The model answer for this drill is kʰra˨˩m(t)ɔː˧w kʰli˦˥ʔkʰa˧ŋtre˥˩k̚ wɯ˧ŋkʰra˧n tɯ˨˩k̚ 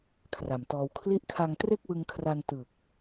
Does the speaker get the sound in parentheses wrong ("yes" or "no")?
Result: no